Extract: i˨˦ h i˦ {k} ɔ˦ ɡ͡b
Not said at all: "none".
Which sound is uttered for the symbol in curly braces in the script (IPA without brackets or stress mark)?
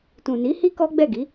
k